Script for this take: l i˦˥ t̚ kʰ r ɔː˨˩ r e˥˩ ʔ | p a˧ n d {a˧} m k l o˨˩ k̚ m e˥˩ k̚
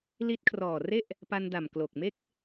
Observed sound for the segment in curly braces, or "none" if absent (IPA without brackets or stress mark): a˨˩